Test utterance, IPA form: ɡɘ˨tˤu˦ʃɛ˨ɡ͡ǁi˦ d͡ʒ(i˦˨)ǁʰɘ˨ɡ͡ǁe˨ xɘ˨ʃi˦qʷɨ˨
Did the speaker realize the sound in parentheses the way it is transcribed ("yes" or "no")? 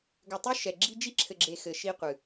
no